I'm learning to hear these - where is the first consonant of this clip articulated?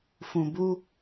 lips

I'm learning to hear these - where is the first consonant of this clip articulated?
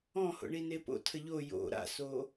throat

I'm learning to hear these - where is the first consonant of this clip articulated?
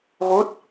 velum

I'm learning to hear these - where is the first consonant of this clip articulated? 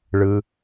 retroflex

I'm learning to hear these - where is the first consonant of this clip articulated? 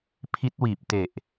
lips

